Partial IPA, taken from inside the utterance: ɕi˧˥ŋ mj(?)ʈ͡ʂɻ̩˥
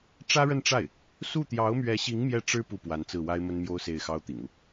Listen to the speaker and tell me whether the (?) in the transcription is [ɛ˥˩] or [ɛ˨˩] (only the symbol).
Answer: ɛ˥˩